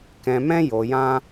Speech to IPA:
k ɛ̃˧ m ɛ̃˦ j o˧ j ã˦

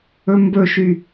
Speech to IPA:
ɵ m b ɵ ʃ y

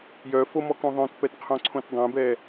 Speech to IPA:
j œ f o m ɔ k õ ðˤ œ̃ t p ɛ t qʰ õ ǀʰ õ t dˤ ẽ b ɛ

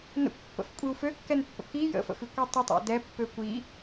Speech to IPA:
n ə̰ kʷ pː ə̰ f kʷʼ i u̯ f ø kː ɛ n pː ə̰ k i j ə̰ f ə̰ f i kʷ y tˤ ə tˤ a̰ d ɛ pː ø kʷ i

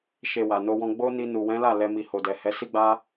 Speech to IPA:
ʃ e˧ w a˨ n o˧ w ɔ̃˧ ɡ͡b o˦ n i˧ n u˨ w ɛ̃˨˦ l a˦˨ l ɛ˧ m i˨ h o˨ d ɛ˨ h ɛ˨˦ s i˦ ɡ͡b a˦

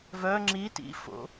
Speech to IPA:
v œ ŋ͡ǁ i t ḭ f o̰

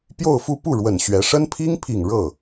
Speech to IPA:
p j o˥˧ ʊ̯ f u˥˧ p u˥˩ ɻ w ə˨˩ n ɕ ɥ ɛ˧˥ ʂ ə˥ n pʰ i˥ ŋ pʰ i˨˩ ŋ ɻ ɤ˥˩

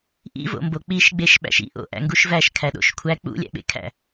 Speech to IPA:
ʔ ḭ v o̰ m b o k͡p i ʃ ɡ͡b e ʃ ɓ æ̰ ʃ ḭ ʔ o̰ ʔ æ̰ ŋ ɡ u ʃ v æ ʃ kʰ æ ɗ o̰ ʃ kʷʰ æ k͡p ṵ lʲ æ̰ ɓ ḛ kʰ æ̰

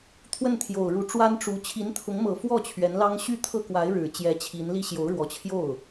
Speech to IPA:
t̪ʰ w ə˥˩ n t̪ʰ j o˨˩ ʊ̯ ɻ u˧˥ ʈ͡ʂ w a˥ n ʈ͡ʂ u˧˥ t͡ɕʰ i˧˥ n t̪ʰ ʊ˧˥ ŋ m ɤ˨˩ f w ɔ˥˩ t͡ɕʰ ɥ ɛ˧˥ n l ɑ˥ ŋ ɕ y˥˩ t̪ʰ ɤ˥ k w a˧˥ ɪ̯ ɻ ɻ̩˨˩ t͡ɕ j ɛ˧˥ t͡ɕʰ i˧˥ n l i˥ ɕ j o˧˥ ʊ̯ ɻ w ɔ˧˥ t͡ɕʰ j o˥˩ ʊ̯

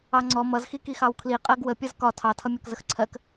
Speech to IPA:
ɑ ŋ͡ǀ ɔ m ʌ z x i k i x ɑ w kʰ l i qʼ ɜ ɡ w ə pʲ ʌ z k ɒ tʰ ɑ tʰ ʌ mʲ ɒ k z ə x ǀʰ ɜ k

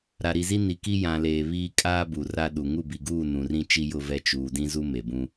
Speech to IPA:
ɾ a˨ ɾ i˨ z i˦ n i˨ k i˦ j ã˨ l eː˨ β iː˦ kʼ aː˦ b uː˨ r a˦ ɗ u˨ ŋ u˦˨ b i˨ ɡ uː˦˨ n ũ˨ r ĩ˦ t͡ʃ i˦ j ʊ˦ v ɛ˦ t͡ʃ uː˨ d ĩ˦ z u˦ m e˨ b ũ˦

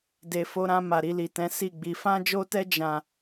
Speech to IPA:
d e˧ f o˧ ɾ ã˧ m a˨ ɾ i˧ l i˨ t ɛ̃˨˦ s i˦˨ ɡ͡b i˧ f ã˦ d͡ʒ o˦ t ɛ˦ d͡ʒ ã˦˨

